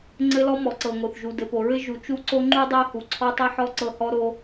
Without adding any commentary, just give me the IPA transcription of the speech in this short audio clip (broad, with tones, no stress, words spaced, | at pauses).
ŋ͡ǀɘ˦lɔ˦ mɔ˨ǀɤ˨ŋo˨θ ʒu˨dɘ˨po˨ɹɘ˦ ʒu˨t͡ʃu˦ǀo˦ ŋ͡ǃu˦dˤɤ˦hu˨ ǀʰɔ˦tˤɘ˦ħɔ˦ ǀɤ˦hɔ˦ɾo˦